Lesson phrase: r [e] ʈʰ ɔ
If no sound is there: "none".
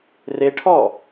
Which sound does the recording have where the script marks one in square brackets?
e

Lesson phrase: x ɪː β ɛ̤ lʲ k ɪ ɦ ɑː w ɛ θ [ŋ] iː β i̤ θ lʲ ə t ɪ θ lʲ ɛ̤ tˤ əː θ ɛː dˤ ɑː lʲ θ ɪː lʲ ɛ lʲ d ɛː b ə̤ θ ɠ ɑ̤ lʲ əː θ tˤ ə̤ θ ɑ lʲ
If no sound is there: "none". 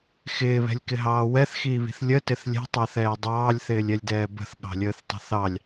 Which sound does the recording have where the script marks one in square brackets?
x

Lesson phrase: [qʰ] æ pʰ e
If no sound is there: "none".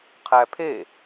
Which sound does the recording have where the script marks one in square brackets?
qʰ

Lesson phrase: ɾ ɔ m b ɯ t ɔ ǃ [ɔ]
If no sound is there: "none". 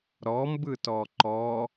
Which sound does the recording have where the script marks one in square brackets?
ɔ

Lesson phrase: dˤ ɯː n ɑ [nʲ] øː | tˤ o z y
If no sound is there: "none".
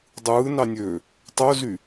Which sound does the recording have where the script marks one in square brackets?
nʲ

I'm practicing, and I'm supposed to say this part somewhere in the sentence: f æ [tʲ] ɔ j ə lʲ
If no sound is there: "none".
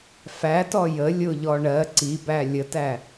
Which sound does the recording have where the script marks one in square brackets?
t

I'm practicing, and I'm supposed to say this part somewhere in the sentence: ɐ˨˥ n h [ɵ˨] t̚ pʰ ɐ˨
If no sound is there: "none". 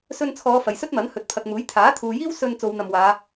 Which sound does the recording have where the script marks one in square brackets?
ɵ˨˥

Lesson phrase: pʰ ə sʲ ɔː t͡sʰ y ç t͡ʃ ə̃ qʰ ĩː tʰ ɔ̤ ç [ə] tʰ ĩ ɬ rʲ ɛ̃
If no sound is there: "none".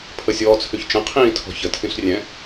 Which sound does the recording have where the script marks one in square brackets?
ə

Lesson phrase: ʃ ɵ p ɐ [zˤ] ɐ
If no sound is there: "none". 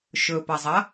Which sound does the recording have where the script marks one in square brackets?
zˤ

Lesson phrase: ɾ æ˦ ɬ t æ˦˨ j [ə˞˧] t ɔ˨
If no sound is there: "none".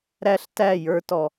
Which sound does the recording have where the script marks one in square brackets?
ə˞˧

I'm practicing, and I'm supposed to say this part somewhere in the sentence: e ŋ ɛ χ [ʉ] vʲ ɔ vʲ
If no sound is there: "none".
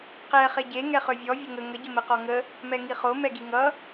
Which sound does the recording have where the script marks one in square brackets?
ø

